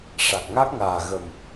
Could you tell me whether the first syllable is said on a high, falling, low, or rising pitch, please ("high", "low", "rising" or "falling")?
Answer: low